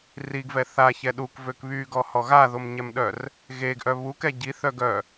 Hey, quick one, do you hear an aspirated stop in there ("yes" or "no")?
no